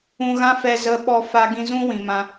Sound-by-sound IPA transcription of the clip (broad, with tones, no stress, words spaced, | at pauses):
ũ˧ɣã˦fɛ˧ zə˧ ɓɔ˧fa˧ɡĩ˧ zũ˦ wĩ˨mã˧